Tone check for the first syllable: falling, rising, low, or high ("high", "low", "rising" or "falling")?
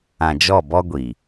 low